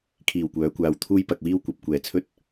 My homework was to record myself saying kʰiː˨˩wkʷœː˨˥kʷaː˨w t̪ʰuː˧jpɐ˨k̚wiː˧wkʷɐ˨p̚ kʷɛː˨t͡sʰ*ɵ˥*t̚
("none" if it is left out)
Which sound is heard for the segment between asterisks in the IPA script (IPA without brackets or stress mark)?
ɵ˥